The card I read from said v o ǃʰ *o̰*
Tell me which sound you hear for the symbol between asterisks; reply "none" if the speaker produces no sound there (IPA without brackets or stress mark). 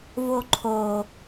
o